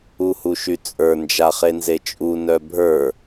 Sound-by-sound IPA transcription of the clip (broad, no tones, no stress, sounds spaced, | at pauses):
u h u ʃ y t͡sʼ ə˞ n d͡ʒ a χ e n z e t͡ʃʼ u n œ bʱ ə˞